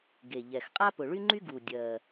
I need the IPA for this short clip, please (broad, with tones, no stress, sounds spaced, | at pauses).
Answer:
ɡ e˨˩ ʎ ɛ˨˩ x qʼ a˥ p ʊ˨˩ ɭ y˥ ŋ͡ǃ y˥ ɡ u˨˩ dʲ ɜ˨˩